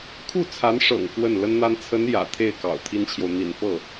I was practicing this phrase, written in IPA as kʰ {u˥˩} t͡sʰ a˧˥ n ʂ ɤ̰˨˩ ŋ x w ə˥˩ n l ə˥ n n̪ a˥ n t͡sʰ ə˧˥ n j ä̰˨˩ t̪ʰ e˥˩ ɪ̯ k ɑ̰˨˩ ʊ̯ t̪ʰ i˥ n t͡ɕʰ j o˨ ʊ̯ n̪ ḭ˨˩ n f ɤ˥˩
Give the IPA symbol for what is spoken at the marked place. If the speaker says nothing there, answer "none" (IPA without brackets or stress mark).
u˥˩